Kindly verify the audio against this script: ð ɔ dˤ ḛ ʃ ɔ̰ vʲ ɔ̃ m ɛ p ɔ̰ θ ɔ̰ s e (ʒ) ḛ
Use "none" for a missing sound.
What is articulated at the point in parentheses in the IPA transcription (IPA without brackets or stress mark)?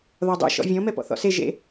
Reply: ʒ